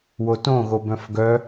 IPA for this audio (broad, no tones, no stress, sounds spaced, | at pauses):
w o t õ ɣ o b œ̃ f ɡ œ